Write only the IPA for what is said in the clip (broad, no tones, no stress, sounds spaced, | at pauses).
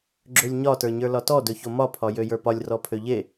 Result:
ɡ͡ǁ ø lʲ ɲ ɒ t ə˞ ɲ ə˞ l ɒ t ɔ d ɵ ç o m ɒ pʰ ɒ j ø j ə˞ p ɒ lʲ r ɔ pʰ ø ʎ e